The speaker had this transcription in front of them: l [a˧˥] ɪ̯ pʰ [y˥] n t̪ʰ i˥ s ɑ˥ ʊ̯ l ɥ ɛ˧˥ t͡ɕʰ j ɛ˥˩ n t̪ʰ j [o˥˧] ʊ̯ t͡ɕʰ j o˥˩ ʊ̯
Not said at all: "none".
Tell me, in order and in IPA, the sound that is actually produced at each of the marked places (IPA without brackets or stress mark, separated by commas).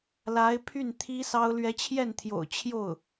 a˧˥, y˥˩, o̰˨˩